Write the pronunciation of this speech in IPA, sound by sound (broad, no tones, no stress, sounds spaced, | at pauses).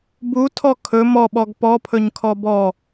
b u tʰ ɔ kʰ ɵ m ɔ ɓ ɔ ɡ p ɔ pʰ ɵ ɲ kʰ ɔ b ɔ